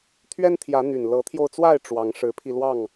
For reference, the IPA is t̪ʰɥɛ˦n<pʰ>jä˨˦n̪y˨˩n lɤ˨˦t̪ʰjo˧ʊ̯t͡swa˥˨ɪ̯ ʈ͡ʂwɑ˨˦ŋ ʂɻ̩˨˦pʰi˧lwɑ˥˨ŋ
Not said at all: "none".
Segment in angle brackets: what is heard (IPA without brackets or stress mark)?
t̪ʰ